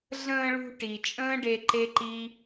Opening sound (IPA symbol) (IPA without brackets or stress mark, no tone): ɮ